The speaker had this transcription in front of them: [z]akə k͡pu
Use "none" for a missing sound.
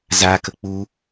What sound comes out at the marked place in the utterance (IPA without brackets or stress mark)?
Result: z